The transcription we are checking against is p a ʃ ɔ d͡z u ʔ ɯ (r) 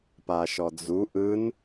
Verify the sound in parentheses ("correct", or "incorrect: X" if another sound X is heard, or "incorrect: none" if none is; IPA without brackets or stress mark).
incorrect: n